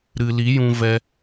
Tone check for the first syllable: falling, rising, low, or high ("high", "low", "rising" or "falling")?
low